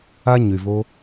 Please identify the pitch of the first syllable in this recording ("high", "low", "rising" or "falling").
high